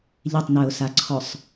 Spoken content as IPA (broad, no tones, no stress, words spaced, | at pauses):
ʎɪtˤnœʊ̯saǀʰɔsˤ